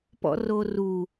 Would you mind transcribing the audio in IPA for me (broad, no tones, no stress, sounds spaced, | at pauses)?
p ɔ̰ r o r u